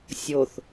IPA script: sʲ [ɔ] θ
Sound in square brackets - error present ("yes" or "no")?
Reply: yes